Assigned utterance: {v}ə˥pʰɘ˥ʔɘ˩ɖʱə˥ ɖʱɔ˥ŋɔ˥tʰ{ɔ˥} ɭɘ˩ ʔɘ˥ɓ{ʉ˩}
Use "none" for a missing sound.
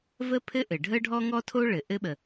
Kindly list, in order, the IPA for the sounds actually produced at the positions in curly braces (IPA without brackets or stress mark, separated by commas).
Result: v, o˥, ə˩